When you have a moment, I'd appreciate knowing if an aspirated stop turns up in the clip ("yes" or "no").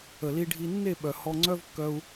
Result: no